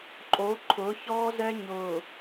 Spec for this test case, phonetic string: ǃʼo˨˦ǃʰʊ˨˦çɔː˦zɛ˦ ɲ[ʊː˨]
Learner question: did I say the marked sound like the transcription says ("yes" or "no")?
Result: yes